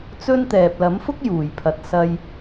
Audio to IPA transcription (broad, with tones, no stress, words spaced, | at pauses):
t͡sɵ˥nt̪ɛː˨p̚ lɐ˨˥mfʊ˥k̚ juː˨˩jpʰɐ˨t̚ sɐ˧j